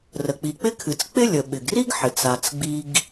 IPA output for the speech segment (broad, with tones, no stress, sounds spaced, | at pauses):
r ə˩ k͡p i˩ k͡p ɪ˦ kʰ ɨ˩ t͡s k͡p ɪ˦ lʲ ə˩ ɓ ɪ˩ ɡ r i˥ ɡ ħ ɪ˩ t͡s a˩ t͡s ɡ͡b i˨ ɡ